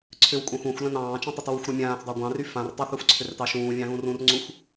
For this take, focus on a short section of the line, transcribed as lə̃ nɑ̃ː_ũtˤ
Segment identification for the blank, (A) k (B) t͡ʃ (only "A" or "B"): B